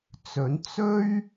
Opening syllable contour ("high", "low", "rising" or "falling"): rising